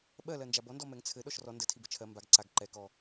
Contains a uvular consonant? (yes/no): no